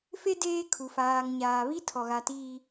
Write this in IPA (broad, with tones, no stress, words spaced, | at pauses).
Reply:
fe˦ deː˦kʰu˨ faː˨ŋ ɲaː˨βi˦tʰɔ˨ɣa˨ tiː˨